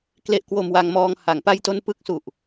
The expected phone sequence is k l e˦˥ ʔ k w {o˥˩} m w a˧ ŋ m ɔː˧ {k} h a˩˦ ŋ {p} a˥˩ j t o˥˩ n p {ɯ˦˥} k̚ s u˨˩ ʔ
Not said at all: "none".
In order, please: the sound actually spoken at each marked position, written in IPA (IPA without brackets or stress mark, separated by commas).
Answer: o˧, ŋ, p, ɯ˦˥